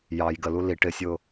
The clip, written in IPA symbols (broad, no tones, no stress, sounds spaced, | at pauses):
j ɑ j ɡ ə l u l i ʈ ɪ sʲ ʊː